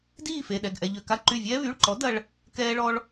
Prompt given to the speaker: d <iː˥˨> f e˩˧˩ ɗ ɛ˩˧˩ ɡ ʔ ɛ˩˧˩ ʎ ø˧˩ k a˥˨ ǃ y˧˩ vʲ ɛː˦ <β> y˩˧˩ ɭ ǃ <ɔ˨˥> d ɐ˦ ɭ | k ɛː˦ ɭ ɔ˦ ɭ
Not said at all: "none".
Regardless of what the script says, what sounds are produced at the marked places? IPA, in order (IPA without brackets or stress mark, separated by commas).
iː˥˨, β, ɔ˨˥